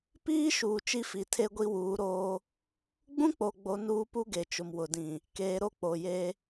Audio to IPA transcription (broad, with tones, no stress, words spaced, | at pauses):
piː˦ʃuː˨ t͡ʃi˦fi˨ tʰe˦ɡʷi˦wuː˨˦ɾoː˦ | ɡ͡bũ˦k͡po˨ɡ͡bo˨ nuː˦pu˦ɡe˨t͡ʃʊ˨m wʊ˨dĩ˨ | keː˨ɾo˦k͡po˨ je˦